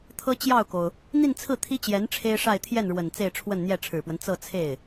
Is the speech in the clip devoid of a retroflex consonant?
no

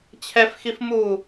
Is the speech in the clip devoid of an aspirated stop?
no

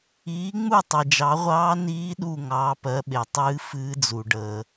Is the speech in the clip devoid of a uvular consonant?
no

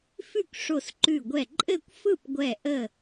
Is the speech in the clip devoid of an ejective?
no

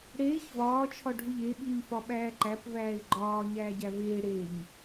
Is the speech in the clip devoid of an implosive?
no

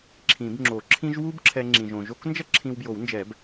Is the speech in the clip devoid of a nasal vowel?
no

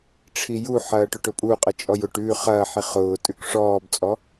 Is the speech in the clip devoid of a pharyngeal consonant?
no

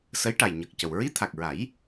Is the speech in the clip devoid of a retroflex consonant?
no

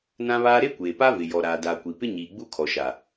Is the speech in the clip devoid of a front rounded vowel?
yes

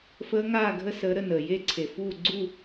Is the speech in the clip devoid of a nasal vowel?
yes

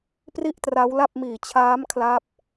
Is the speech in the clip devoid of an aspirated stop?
no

